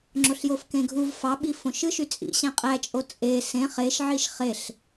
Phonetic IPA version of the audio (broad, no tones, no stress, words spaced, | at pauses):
ŋ͡ǁoɬjofkẽɡʱuv fɑɓi fõʃɯʃy t͡sʼḭ ɕæ̃qʼæt͡ʃʼo t͡sʼe sẽ χeʃ ʕiʃχeɬ